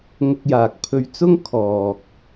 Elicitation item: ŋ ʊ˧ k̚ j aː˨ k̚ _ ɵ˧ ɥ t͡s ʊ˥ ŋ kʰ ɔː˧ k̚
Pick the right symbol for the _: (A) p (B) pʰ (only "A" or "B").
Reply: B